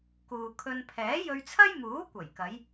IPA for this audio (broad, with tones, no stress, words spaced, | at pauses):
kuː˨kʰɵ˧n pʰɛː˨˥jɵ˧ɥt͡sʰɐ˥jmuː˨˥ kʷɐ˨˩jkɐ˨˧j